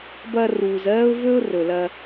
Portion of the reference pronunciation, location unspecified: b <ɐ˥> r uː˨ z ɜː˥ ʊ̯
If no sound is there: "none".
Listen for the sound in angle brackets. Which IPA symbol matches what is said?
ɐ˦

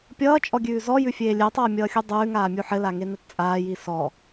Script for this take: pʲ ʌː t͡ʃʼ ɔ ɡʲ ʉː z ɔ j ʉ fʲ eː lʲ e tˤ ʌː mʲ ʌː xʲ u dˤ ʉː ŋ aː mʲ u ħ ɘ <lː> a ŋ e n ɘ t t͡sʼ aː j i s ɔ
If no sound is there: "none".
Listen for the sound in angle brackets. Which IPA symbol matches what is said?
l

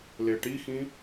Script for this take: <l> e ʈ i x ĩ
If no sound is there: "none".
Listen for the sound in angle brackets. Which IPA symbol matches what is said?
l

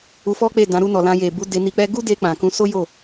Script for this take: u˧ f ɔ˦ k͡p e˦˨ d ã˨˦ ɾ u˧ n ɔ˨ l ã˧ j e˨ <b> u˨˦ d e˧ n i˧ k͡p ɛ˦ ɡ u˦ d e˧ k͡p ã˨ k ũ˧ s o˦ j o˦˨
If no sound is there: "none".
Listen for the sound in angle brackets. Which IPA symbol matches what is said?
b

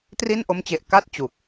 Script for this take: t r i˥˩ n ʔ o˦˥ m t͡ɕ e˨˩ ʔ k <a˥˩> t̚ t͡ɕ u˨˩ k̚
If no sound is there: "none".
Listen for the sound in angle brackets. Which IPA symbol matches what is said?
a˥˩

